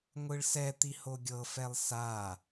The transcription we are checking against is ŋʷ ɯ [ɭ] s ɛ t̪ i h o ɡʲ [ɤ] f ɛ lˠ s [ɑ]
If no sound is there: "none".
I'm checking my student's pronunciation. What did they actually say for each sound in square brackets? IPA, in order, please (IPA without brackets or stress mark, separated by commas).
ɭ, ɤ, a